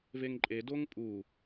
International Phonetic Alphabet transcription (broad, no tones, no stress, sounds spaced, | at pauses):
v e ŋ ǃʼ e d o ŋ pʼ u